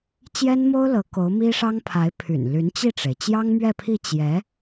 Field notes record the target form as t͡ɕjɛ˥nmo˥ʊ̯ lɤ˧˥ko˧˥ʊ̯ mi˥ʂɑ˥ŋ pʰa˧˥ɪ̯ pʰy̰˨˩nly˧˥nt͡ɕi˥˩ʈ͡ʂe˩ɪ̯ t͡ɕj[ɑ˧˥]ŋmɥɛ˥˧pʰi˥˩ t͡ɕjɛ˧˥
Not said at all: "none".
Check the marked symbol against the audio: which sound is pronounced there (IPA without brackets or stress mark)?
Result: ɑ˥